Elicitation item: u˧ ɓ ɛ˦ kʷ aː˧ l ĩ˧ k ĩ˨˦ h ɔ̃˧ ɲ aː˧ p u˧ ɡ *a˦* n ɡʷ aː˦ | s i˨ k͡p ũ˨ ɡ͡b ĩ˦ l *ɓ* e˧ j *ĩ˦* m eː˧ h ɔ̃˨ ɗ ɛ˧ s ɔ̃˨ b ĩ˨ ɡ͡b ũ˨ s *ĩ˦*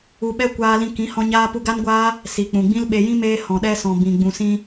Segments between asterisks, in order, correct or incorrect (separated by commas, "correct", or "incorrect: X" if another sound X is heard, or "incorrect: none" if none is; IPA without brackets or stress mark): correct, correct, correct, incorrect: ĩ˧